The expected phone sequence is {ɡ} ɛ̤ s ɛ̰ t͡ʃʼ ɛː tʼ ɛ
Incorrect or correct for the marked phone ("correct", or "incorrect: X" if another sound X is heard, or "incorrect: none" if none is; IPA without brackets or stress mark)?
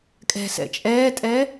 incorrect: kʼ